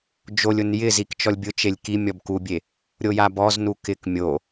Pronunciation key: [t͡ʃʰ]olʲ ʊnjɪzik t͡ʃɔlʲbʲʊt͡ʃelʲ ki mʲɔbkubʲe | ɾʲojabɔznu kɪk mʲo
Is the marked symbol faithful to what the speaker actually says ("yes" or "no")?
no